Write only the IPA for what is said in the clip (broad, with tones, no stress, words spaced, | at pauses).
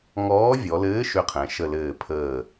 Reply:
ŋɔː˨˥vʲɔ˩˧lɘː˨˥ ʃʏ˨˥qʰɛ̃˩˧ ʃə˧˩lɘː˧˩pʰəː˧˩